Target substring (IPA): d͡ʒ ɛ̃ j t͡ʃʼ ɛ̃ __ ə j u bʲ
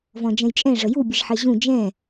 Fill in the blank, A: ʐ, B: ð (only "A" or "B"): A